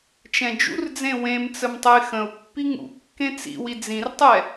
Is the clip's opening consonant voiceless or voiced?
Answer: voiceless